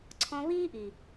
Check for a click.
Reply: present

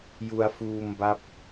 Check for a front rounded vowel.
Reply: absent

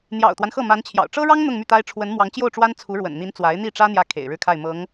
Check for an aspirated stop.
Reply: present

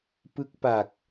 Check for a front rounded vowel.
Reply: absent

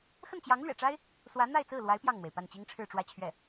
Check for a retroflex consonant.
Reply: present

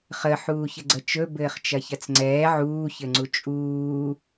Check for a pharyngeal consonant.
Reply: present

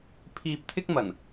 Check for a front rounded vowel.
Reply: absent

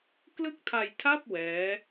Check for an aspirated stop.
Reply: present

